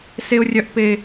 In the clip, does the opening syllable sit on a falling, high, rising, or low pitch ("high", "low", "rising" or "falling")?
high